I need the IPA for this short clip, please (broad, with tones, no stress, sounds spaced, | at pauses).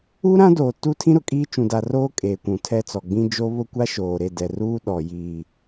u˦ ɾ ã˦ d oː˨ t uː˦ tʰ ĩ˦ ɾ ʊ˨ kʼ iː˦ t͡ʃ ũ˨ d a˨ r oː˦ kʼ eː˨ kʷ ũ˨ tʰ ɛ˦ t͡s ɔ˨ ɡ͡b ĩ˦ d͡ʒ o˦ β ʊ˦ kʷ a˦ ʃ oː˨ ɾ e˦˨ d ɛ˨ r uː˦ ɗ ɔ˨ j iː˨